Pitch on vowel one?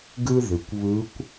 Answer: high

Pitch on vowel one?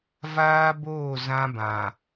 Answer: high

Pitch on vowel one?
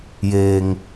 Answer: low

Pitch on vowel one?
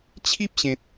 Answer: high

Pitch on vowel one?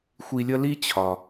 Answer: high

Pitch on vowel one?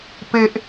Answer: low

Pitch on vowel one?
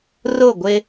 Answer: falling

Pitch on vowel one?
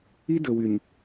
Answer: high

